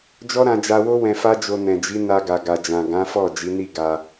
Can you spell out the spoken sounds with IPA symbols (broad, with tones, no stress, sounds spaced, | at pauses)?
d͡ʒ ɔ˦ ɾ ã˧ d͡ʒ a˧ w o˦ w ɛ̃˧ f a˦ d͡ʒ o˧ n ɛ̃˨ d͡ʒ i˨˦ n a˧ ɡ a˨ ɡ a˨ d͡ʒ ã˨ ɡ ã˨˦ f ɔ˦˨ d͡ʒ i˨˦ n i˦˨ ɡ a˧